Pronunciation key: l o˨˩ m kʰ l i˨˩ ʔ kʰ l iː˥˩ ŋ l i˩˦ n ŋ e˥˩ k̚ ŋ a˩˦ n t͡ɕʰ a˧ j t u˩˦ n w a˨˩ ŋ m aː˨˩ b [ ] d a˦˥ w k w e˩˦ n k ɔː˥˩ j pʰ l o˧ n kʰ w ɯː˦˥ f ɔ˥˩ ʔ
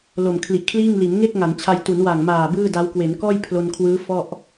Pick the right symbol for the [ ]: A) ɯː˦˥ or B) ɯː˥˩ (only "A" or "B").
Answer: B